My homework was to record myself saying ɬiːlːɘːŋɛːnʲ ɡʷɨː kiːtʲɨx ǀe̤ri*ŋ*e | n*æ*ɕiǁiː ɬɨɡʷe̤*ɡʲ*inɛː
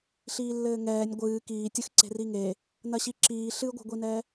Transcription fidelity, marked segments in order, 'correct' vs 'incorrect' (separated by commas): correct, incorrect, incorrect